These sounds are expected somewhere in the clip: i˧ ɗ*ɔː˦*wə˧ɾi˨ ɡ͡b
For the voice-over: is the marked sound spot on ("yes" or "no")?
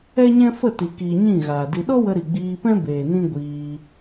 no